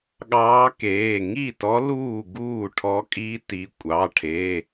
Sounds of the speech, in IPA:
ɠɑː˧˥keː˩˧˩ ŋi˥˩tɔ˧˥ luː˥˩ɡuː˥˩ ʈʰɔ˧˥ kʼi˧˥ti˩˧˩ kʷʼɑ˩˧˩ʈʰe˩˧˩

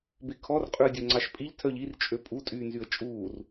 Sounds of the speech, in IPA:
bekʰɔr qʼʉə̯dʲɵːŋ͡ǀɑʃpʼiʎ tʰœʎir t͡ʃʼøpʼu tʼyːnzyə̯t͡ʃʼuːr

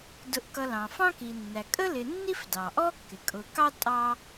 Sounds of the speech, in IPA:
dʊ˨ʔkʌ˨lɑ̃˩ fɑ̃˦ki˩nːæ˩ kʼə˦lɪ˨nːi˦fdɑ˩ ʔɔ˥kːɪ˩kʼʊ˨kɑ˥ tʼɑ˦

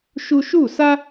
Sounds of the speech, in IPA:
ʃu˧ʃu˦˨sa˦

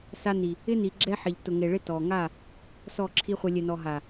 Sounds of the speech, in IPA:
sa˧ni˨ | ɪ˦ni˨ ɡ͡ǁɛ˦ħɪ˨ʎ tʊ˨ŋe˨ ɭɪ˦tɔ˨ ŋa˦˨ | sɔ˦˨ǁʰi˦χʷɛ˧ lʲɛ˨ nɔ˨ɦa˨

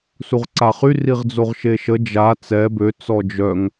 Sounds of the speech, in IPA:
suʁǀaχy riʁd͡zoʁʃeʃə d͡ʒa t͡sɛ bø t͡sɔd͡ʒœŋ

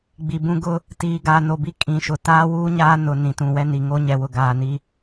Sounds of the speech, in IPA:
ɡ͡bi˨bũ˦ɡʊ˦ | tiː˨ɡaː˨no˨ bi˦ kʼĩ˨ʃʊ˨ taː˦wuː˦ɲaː˦ nʊ˨ nĩ˨tũ˨wɛ˦ni˨ ŋo˦ ɲɛ˨wʊ˨ ɡaː˨ni˦

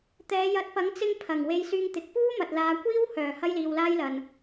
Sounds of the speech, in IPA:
t̪ɛː˨˧ jɐ˨˥t̚pɐ˨˥ŋ t͡sɪ˧ŋ pʰɐ˨˩ŋ we˧jsyː˧ŋt̪ɪ˨˥k̚ puː˥mɐ˨t̚laː˨˧ kʷiː˥whœː˨˩ hɐ˥jliː˧wlaː˥jlɐ˧n

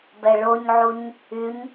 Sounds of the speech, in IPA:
bɛɭoɲʕuɲ | yɲ

